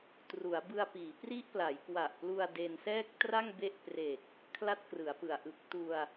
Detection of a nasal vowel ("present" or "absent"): absent